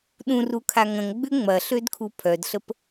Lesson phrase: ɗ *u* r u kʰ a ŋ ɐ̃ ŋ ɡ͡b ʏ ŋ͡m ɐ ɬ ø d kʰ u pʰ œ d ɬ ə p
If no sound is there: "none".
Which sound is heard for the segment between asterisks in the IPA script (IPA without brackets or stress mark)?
ũ